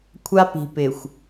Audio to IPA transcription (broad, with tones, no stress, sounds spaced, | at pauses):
kʷʰ a˦ p i̤˨ p ɪ˨ xʷ